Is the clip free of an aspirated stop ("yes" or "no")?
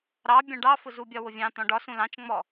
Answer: yes